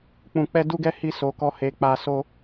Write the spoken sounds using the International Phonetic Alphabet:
k͡p ũ˧ k͡p ɛ˦ d u˦ ɡ ɛ˦ h i˦ s o˧ k ɔ˦ h e˧ k͡p a˧ s o˦

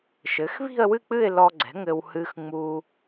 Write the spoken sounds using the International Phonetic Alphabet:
ʃ ɘ˩˥ x β i̤˥˧ ə̯ w ɨ˥˧ k͡p ɨ˥˧ ɪ̯ l ɔ˧ ɡ͡ǀ ɛ̤˩˥ ŋ ɘ˧ w h ɨ˧ x ŋ͡m u˧

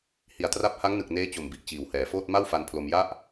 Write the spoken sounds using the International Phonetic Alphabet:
h i˨˩ a̯ t r a˦˥ p̚ h a˦˥ ŋ n ɯ˨˩ k̚ n eː˦˥ t͡ɕ o˨˩ m b i˨˩ ʔ t͡ɕ iː˨˩ w h ɛː˩˦ f oː˥˩ t̚ m a˥˩ w f a˧ n pʰ l o˧ m j a˥˩ ʔ

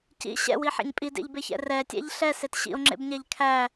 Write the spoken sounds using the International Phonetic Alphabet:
c ḭ ɕ ɛ̰ w i ħ ɛ̰ ɲ pʼ i d ḛ ʎ b e ç ɛ̰ r ɛ tʲ æ̰ ʎ ɬ ɛ s e t ɕ ḭ o̯ ŋ͡ǁ ḛ b ɲ æ ʎ kʰ æ

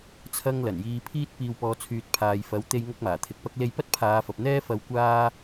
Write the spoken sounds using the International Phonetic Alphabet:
t͡sʰ ɐ˥ ŋ l ɐ˨˩ n j iː˧ pʰ iː˥ t̚ p iː˨ w p ɔː˨ t͡sʰ yː˨ t̚ pʰ aː˨ j f ɐ˨˥ w t̪ e˧ j ŋ ɐ˥ k̚ m aː˨˩ t̪ʰ ɪ˧ k̚ p ɐ˥ k̚ l e˧ j p ɐ˥ t̚ pʰ aː˨˧ f ɐ˨ p̚ n̪ ɛː˥ f ɐ˨˧ w kʷ aː˧

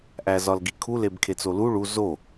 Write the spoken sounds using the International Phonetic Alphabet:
ʔ æ z ɒ l ɡ i kʰ u l e b kʰ e t͡s o l u ɭ u z o

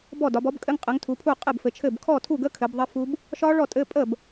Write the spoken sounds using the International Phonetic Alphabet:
b ɔ˥˩ d ɒ˨˦ b ɔ˦˥ b kʼ ɘ˧˥˧ ŋ qʼ ɘ˨˦ ŋ tʰ u˨˦ pʰ u˥˩ qʼ ɘ˥˩ b f ɘ˨˦ t͡ʃʰ ɘ˥˩ b kʰ ɔ˥˩ tʰ u˥˩ ɡ ə˧˥˧ kʰ ɘ˨˦ b ðˤ ə˦˥ f u˦˥ b | ʃ ɒ˦˥ ɭ ɔ˥˩ tʼ ɘ˧˥˧ pʼ ə˥˩ b

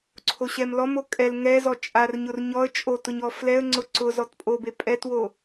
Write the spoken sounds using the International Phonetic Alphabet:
ǀʰ o ɕ ɛ m l ɔ m o kʼ ɛ l ŋ ɛ z ɔ t͡ʃʼ a r ɲ ʊ r ɲ ɔ ə̯ t͡ʃʼ o t ʊ ɲ ɔ f l ɛ ə̯ ŋ͡ǀ ʊ ǀ ʊ z ɔ t pʼ o b e pʼ ɛ t w o

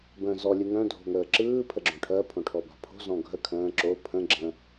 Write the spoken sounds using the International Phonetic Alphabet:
b ə̃ː z ɔ lʲ ɯ ŋ œ̃ dʱ o̤ ŋ əː ǁ ɯː pʰ ə ɡ͡ǁ õ ʈʰ ɜ pʰ õ ʈʰ ɔ b a̤ pʰ o̤ z ɔ̃ ɡʱ ə kʰ ə̃ː ǁ o pʰ ə̃ ɡ͡ǁ ə̃

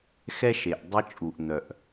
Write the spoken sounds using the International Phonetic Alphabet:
x ɛ˦ ʃ e˨ ʔ dˤ e˦ t͡ʃʼ u˨ ʔ n̪ œ˨ ʔ

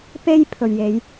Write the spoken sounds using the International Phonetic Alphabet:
p e˥ j pʰ ɵ˨ ɥ j e˨˧ j

